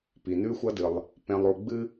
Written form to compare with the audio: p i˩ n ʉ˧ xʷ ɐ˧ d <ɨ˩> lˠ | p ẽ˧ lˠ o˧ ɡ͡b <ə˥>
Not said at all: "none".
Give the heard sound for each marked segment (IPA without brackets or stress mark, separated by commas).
ɨ˩, ɨ˥